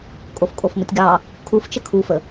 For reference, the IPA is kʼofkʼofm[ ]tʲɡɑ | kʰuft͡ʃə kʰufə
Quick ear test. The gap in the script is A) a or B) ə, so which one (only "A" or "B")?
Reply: B